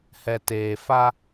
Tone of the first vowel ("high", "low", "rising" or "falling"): low